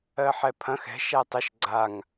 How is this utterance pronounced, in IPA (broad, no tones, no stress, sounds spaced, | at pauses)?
ɜ ħ ɛ pʰ ɐ̃ x ɛ̤ ʃ æ tˤ ə ʃ ɡ͡ǀ a ŋ